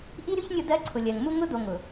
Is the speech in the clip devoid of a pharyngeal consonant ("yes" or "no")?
yes